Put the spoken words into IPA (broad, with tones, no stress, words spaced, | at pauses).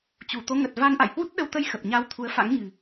t͡ɕu˧˩t̪o˨˦ŋə˨˩t̚ va˧n ʔa̰˧˨jhwu˦˥t̚ɗə˧w t̪ə˧j xə˨˩p̚ɲa˧wt̪ʰu˨˦ə̯fa̰˧˥ŋ ɲɨ̤˨˩